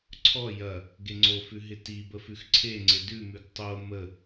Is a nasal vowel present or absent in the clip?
absent